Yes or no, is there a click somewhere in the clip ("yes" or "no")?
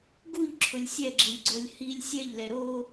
yes